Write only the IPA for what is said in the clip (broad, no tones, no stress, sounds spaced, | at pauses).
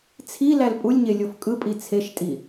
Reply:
t͡sʰ i l æ l pʼ u lʲ ɲ e lʲ o f kʼ ɯ pʼ i t͡sʰ e ʃ tʼ i